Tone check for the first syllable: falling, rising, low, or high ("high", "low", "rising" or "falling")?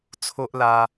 high